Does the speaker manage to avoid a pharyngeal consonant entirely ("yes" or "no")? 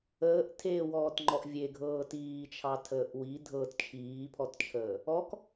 yes